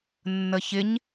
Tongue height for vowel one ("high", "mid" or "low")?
mid